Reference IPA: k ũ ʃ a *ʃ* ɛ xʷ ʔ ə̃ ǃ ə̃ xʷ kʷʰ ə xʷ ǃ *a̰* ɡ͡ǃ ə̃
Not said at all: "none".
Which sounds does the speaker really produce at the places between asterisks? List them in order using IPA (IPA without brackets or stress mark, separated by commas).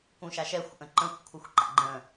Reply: ʃ, a̰